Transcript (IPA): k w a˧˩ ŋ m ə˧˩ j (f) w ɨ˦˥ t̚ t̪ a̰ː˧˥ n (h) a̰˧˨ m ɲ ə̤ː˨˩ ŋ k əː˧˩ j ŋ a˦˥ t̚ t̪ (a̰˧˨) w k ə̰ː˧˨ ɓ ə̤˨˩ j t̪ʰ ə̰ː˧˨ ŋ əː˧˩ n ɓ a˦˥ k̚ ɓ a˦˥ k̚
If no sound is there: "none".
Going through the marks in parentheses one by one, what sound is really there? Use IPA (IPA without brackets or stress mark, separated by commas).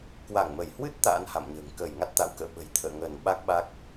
h, h, a̰˧˨